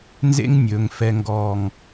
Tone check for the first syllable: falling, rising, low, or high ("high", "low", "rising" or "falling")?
high